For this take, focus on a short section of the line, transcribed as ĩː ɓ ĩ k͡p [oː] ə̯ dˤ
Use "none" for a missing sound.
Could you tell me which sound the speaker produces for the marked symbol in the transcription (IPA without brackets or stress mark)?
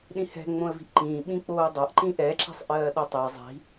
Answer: oː